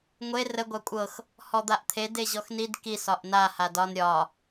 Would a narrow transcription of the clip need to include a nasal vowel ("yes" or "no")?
no